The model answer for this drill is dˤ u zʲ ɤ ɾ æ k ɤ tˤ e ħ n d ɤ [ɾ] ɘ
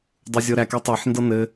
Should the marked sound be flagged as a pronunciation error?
yes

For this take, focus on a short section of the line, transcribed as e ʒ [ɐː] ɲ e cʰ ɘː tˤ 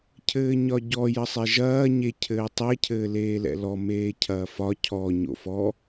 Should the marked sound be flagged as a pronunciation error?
no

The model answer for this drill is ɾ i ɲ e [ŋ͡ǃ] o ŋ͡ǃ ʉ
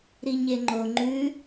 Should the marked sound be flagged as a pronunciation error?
no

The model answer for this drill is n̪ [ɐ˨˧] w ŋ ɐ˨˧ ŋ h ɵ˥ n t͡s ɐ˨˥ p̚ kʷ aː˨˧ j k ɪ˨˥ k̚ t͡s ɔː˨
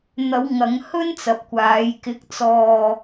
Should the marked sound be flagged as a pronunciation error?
no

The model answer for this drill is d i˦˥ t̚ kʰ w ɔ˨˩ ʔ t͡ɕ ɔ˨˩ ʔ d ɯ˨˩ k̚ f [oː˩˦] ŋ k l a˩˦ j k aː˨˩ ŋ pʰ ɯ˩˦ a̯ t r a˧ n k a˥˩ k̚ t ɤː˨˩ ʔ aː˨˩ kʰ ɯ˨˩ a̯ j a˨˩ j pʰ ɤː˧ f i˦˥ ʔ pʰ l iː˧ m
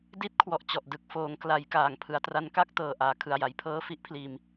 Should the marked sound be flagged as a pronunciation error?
no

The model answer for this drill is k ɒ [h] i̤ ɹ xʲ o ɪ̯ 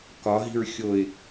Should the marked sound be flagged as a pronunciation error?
yes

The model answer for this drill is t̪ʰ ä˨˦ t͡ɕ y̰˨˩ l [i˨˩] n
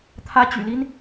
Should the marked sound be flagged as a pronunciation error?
yes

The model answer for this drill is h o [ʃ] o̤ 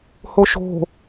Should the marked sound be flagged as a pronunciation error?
no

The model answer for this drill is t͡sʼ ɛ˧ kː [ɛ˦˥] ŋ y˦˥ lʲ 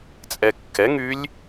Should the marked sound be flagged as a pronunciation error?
yes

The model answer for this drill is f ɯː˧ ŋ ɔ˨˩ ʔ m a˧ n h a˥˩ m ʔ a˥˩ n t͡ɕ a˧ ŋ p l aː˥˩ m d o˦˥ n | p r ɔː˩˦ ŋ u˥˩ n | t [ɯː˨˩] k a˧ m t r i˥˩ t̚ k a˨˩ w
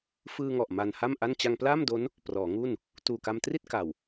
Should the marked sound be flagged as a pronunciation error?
yes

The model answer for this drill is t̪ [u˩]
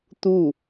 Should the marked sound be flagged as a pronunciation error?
yes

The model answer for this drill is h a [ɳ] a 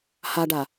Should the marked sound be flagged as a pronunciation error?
yes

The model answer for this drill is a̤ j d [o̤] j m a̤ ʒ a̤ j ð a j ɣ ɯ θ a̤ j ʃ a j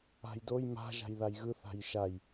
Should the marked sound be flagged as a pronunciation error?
yes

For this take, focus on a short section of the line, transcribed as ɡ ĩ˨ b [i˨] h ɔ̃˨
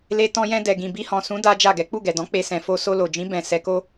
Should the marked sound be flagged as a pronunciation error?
yes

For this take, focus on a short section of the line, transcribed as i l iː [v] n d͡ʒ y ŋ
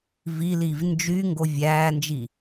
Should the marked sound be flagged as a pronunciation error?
no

